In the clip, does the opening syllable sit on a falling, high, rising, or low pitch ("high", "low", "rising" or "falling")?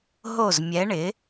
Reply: falling